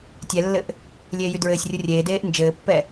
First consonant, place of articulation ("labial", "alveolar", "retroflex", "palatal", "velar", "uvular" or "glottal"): alveolar